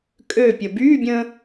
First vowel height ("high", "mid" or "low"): mid